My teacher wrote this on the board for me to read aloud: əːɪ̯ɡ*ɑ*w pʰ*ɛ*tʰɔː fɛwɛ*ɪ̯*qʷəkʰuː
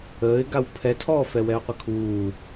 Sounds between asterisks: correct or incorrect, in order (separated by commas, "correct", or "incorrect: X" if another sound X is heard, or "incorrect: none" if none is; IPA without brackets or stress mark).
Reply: incorrect: a, correct, incorrect: ʊ̯